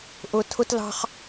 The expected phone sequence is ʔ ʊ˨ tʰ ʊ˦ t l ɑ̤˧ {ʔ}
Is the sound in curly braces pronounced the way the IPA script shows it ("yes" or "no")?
no